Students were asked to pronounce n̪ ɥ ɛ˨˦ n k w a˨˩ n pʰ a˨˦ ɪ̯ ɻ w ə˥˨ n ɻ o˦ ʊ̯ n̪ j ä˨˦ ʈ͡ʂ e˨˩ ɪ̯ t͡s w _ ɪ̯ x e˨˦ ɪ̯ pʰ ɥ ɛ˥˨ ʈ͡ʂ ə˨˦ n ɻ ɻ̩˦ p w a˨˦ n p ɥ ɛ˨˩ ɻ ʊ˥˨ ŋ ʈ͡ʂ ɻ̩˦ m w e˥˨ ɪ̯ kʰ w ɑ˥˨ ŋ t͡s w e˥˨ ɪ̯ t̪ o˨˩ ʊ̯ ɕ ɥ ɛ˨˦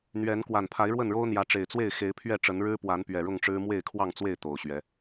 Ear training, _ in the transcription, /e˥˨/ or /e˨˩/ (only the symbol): e˥˨